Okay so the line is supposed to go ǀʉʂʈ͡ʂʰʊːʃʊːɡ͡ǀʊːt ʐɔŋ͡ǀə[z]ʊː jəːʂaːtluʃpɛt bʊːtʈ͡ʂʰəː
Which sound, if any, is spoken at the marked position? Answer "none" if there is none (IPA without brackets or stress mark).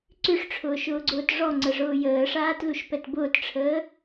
ʐ